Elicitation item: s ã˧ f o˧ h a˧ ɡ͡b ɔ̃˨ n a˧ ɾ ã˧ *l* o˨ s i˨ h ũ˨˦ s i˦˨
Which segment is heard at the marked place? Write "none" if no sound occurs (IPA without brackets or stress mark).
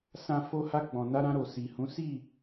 ɾ